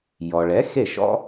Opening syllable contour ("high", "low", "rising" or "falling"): low